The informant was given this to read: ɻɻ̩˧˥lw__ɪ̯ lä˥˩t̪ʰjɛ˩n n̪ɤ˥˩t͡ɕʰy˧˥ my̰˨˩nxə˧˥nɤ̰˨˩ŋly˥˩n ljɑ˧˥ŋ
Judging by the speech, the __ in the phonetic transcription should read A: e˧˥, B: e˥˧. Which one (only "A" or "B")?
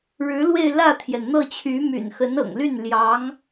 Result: B